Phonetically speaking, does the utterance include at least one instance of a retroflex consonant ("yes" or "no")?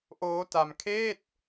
no